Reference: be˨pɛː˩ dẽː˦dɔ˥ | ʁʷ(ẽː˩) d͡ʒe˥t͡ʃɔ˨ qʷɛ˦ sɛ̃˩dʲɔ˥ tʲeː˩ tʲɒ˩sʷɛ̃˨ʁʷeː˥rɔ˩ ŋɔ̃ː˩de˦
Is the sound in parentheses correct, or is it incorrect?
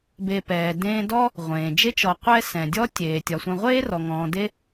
correct